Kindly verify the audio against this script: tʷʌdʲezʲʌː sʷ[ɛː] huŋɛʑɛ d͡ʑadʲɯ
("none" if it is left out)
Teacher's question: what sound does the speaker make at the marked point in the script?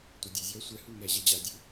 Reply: ɛ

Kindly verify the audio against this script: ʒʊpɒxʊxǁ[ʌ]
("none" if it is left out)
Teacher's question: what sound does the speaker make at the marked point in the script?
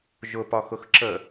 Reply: ə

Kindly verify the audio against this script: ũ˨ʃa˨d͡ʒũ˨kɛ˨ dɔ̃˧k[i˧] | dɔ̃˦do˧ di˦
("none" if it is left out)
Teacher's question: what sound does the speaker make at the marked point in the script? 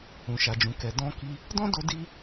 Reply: i˧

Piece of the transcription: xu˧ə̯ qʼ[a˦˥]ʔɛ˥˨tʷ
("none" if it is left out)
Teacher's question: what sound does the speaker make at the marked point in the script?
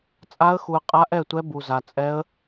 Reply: a˦˥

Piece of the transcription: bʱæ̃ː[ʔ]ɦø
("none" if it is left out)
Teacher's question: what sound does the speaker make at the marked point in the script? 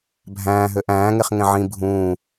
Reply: none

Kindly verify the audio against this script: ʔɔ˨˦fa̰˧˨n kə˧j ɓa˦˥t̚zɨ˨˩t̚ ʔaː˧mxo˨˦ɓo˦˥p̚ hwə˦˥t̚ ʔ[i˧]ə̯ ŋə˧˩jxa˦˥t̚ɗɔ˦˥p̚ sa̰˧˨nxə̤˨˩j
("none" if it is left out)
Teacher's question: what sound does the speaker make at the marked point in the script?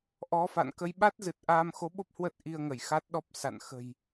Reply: i˧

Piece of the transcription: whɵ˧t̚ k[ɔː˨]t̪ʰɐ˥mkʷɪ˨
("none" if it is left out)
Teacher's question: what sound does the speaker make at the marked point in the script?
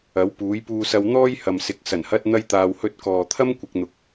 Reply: ɔː˨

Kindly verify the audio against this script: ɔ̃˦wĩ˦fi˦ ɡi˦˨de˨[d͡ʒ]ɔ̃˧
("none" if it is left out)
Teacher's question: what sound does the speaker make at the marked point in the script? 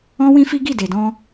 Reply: d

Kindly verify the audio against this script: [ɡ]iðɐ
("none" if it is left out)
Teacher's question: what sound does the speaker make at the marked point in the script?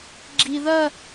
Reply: ɡ͡ǁ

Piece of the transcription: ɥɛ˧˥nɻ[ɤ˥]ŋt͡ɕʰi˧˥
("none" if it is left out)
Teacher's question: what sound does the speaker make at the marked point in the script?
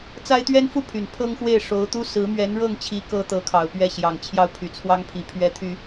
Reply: ɤ˥˩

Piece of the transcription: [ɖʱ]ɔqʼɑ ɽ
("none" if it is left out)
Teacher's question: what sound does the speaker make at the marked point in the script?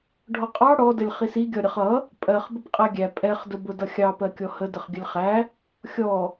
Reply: ɖʱ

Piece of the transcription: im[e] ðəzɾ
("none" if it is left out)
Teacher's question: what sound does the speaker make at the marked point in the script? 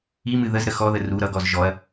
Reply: ɨ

